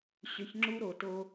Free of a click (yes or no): no